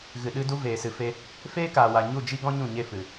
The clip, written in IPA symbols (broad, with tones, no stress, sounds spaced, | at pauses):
ɣ ɨ˨ ɗ ɨ˧ d u˧ v eː˨ s ɨ˨ f e˧ | f eː˦ k aː˨ w a˨ ɲ u˦˨ d͡ʒ i˦ ɡ ɔ̃˦ ɲ ũ˦˨ ɲ e˦˨ f ɨ˨